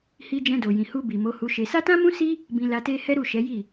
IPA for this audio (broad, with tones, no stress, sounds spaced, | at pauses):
h i˧ d͡ʒ ɛ̃˧ d o˨ j ĩ˨ h u˧ b i˨ m o˨˦ h u˧ ʃ e˧ s a˦ t ã˦ m ũ˦ s i˦ | b ĩ˧ l a˧ t e˦ h ɛ˦ ɾ u˦˨ ʃ ɛ˨˦ j i˦˨